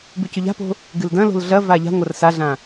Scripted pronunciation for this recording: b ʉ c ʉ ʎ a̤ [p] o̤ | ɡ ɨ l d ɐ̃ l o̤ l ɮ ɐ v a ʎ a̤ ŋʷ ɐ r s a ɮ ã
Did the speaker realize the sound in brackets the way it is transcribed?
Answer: yes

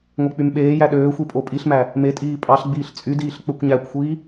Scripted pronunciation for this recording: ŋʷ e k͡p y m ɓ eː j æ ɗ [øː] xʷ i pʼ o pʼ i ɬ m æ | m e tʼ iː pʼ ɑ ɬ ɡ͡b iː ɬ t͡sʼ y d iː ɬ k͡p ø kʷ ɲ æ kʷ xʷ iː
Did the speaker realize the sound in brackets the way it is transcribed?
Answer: yes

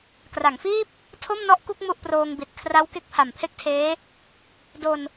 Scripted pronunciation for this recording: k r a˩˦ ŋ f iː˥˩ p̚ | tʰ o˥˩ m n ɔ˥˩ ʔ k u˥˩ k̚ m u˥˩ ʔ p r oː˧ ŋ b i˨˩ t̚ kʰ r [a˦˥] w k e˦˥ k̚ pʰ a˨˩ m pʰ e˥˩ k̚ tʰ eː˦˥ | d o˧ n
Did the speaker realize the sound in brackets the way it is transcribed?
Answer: yes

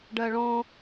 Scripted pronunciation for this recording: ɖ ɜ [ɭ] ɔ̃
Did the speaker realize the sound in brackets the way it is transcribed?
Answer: yes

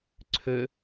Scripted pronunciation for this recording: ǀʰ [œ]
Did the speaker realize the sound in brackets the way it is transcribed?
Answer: no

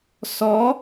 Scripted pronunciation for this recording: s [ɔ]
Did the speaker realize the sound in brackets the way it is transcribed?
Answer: yes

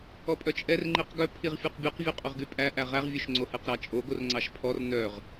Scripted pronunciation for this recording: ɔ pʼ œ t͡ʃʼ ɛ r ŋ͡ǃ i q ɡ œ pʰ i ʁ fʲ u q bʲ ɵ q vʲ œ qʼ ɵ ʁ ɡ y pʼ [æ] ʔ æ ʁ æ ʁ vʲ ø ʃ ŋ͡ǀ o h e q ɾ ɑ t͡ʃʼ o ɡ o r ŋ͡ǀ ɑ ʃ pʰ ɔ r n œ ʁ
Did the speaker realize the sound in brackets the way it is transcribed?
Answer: yes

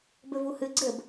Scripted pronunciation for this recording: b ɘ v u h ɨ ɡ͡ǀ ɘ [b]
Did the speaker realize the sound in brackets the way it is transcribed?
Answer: yes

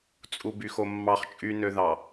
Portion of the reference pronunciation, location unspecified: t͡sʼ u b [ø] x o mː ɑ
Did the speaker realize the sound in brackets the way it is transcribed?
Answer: no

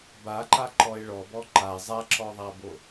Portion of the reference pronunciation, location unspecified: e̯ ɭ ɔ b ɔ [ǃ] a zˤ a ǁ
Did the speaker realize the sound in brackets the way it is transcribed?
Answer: yes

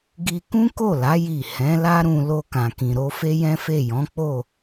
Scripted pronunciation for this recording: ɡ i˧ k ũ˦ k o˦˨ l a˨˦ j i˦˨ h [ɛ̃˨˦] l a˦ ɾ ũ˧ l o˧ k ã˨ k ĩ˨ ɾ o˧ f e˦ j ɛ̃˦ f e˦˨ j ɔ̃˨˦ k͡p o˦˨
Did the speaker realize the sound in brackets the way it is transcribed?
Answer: yes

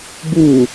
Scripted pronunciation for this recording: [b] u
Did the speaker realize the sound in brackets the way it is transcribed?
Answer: yes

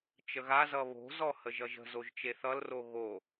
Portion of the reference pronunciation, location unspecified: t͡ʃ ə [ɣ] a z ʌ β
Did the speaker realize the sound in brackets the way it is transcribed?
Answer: yes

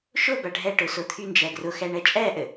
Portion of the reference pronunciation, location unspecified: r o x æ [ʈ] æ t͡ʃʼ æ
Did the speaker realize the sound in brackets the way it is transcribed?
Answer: no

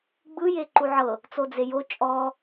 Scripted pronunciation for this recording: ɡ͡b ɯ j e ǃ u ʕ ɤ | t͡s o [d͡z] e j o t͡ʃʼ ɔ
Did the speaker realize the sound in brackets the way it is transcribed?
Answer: yes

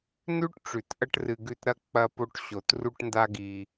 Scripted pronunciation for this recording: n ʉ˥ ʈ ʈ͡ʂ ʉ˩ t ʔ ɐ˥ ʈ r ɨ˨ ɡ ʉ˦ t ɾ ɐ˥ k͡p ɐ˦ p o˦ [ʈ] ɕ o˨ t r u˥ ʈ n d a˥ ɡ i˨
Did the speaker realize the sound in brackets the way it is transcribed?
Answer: yes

